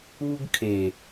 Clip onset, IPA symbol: u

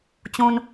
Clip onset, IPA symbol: t͡ɕ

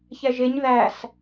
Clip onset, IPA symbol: ç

